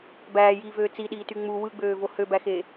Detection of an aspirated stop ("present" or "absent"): absent